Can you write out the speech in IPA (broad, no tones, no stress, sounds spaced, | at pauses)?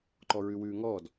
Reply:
ǃ ɔ ɹ ʉ w ʉː ŋ ɔː d